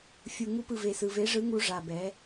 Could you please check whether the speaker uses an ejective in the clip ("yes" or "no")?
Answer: no